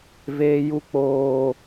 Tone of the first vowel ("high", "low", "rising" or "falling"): high